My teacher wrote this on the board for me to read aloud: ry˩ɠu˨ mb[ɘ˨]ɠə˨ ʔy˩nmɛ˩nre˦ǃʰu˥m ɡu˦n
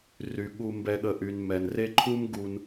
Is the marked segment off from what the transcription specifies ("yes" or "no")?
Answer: yes